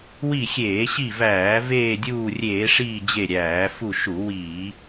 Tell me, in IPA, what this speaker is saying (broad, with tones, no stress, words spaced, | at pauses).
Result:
wi˦˨xʲeː˧˩˧ɕi˦˨væː˧˩˧ veː˦˨dʲuː˦˨rʲeː˧˩˧ʂiː˦˨ d͡ʑe˦˨ɾʲæː˧˩˧ fu˦˨ʃu˧˩˧ wiː˧˩˧